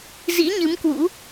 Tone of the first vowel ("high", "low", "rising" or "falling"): rising